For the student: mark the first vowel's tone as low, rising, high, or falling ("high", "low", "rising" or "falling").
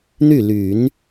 falling